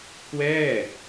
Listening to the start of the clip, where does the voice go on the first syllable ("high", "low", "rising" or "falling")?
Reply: falling